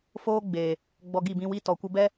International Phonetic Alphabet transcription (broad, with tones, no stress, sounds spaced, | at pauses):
f oː˦ ɡ͡b eː˨ | ɡ͡b ɔ˧ ɡ i˦˨ b ĩ˧ w i˧ t ɔ˨ kʷ ə˧ b ɛ˦